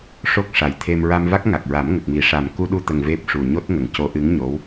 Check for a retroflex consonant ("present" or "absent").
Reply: present